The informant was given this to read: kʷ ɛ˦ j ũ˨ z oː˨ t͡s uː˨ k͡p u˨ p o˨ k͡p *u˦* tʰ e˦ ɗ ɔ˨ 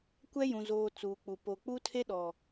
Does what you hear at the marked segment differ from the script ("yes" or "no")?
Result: no